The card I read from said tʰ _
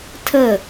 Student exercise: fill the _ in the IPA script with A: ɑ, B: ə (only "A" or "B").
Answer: B